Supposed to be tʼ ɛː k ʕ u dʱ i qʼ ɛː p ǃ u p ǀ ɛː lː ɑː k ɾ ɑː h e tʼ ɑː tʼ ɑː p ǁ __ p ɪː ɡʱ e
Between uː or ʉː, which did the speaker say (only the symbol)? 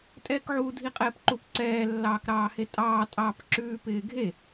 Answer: ʉː